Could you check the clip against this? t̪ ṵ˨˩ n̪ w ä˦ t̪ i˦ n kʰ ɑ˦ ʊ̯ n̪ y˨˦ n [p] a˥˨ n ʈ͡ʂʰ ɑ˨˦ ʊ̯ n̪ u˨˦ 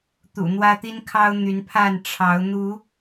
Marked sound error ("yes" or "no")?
yes